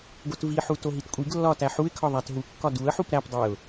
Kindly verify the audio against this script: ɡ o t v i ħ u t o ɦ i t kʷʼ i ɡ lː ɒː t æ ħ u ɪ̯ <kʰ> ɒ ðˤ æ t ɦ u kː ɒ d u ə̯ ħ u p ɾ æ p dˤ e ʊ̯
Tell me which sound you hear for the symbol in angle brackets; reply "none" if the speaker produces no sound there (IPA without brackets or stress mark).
kʰ